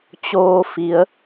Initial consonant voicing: voiceless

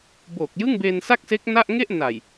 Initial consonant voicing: voiced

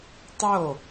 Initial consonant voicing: voiceless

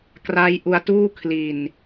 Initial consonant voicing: voiceless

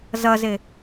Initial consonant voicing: voiced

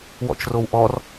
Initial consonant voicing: voiced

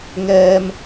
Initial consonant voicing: voiced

